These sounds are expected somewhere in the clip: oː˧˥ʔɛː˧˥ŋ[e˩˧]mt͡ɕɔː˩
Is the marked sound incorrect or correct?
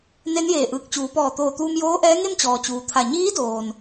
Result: incorrect